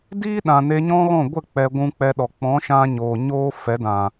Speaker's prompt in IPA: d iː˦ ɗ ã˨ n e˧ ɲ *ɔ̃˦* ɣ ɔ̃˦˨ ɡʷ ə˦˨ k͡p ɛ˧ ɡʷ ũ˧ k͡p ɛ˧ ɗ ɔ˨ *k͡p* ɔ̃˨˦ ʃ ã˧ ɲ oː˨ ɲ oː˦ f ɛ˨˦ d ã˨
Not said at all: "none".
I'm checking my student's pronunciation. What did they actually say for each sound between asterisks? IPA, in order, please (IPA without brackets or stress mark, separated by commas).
ɔ̃˦, k͡p